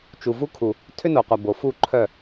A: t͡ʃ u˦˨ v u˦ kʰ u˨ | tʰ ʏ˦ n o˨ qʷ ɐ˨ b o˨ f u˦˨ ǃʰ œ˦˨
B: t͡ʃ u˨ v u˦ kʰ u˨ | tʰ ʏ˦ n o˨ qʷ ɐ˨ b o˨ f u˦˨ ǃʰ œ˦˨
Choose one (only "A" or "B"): B